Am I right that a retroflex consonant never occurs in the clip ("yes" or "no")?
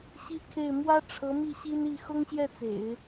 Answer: no